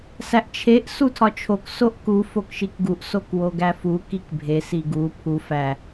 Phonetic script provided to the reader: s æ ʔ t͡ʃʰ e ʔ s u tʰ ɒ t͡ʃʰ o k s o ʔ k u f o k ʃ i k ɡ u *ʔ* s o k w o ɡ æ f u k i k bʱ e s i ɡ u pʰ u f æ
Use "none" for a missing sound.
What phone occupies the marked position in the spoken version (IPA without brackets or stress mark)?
ʔ